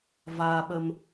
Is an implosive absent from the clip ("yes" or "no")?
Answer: no